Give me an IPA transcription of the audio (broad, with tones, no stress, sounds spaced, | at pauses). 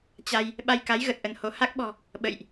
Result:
t͡ɕ a˧ j | ɓ a˧ j k a˨˦ j ɣ ə˨˩ t̚ ʔ ə˧ n h o˨˦ h a˦˥ k̚ ɓ ɔ̤˨˩ | ɓ ə̰˧˨ j ʔ